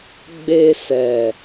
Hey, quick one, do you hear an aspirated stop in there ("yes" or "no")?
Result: no